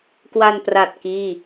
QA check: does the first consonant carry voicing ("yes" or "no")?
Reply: no